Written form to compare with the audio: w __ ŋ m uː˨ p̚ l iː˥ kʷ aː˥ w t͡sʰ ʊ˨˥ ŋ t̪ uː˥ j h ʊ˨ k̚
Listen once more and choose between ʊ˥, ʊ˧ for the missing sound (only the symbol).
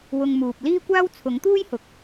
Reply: ʊ˧